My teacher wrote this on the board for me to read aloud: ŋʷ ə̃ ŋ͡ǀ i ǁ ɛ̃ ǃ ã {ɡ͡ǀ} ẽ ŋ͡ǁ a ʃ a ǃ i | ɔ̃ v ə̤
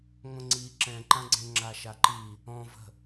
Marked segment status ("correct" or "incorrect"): correct